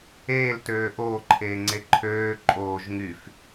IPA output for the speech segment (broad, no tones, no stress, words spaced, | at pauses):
eːltøː ʔoːǃʰeːŋ͡ǀe ǃʰøː ǃʼoːʒ ŋyf